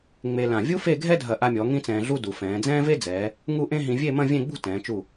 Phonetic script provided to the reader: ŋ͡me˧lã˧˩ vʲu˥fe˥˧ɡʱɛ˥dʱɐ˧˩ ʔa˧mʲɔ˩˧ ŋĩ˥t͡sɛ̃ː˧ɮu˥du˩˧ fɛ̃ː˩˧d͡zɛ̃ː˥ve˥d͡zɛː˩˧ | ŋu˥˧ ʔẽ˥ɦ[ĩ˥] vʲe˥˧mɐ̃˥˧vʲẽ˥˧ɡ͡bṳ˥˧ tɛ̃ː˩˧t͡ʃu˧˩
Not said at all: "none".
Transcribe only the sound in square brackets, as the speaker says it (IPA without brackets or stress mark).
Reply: ĩ˧